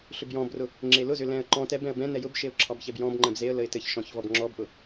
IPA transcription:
ɬ ʏ b j ɔ̃ b r ʊ | ŋ͡ǁ e l ʊ z ʏ l ɛ̃ ə̯ ǃ ɔ̃ t ɛ b ɛ̃ ə̯ b ɛ̃ n ɛ j ʊ b ʃ e ʊ̯ ǁʰ ɑ b ç ɛ b j ɔ̃ b ŋ͡ǃ ɛ̃ b z e ə̯ l ə ɪ̯ t ɘ ç ʃ ɔ̃ ç v ɔ b ŋ͡ǁ ɔ b ʔ ʊ

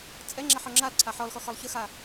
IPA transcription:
t͡sʼ ɛ ŋ͡ǁ a ħ ɔ ŋ͡ǁ a l ǀʰ a ħ ɔ l x ɔ x ɔ lˠ ç ə x a

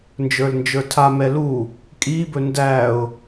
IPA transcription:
n d͡ʒ ə˞ l n d͡ʒ ə˞ tʰ a m ɛ l u | kʼ i b ɵ n d æ ʊ̯

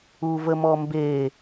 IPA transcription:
u v ə m ɔ m b eː

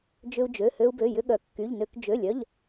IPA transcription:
d͡ʒ ʏ˧ u̯ d͡ʒ ø˩˧˩ h ø˧ u̯ b ø˩˧˩ j ʏ˧ ɠ œ˩˧ kː y˩˧˩ ʎ n ø˧ k d͡ʒ ø˩˧˩ lʲ œ˩˧˩ ʎ

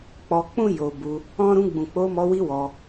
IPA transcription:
k͡p ɔ˧ k͡p ũ˦ j o˧ b u˧ | ɔ̃˦ ɾ ũ˧ ɡ͡b ũ˨ k͡p o˧ m ɔ˧ w i˧ w ɔ˧

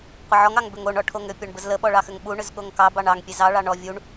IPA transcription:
qʷ ə ʕ ɔ ŋ ɑ ŋ b ʏ ŋ o ɳ ɔ ʈʰ o ŋ ʏ pʲ ɔ ɳ b ə z l ə ɓ ɔ ɭ ɑ x ʏ ŋ ɓ u ɳ ʏ z ɠ o ŋ k ɑ b ɑ ɳ ɑ ŋ pʲ e z ɑ ɭ ɑ ɳ ɔ vʲ u ɳ

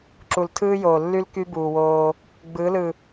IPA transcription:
ǁ u˨ l tʰ ɯː˦ j oː˨ lː y˦ l k y˦ b uː˨ w oː˦ | ɡ͡b ɯ˨˦ l ɯ˨

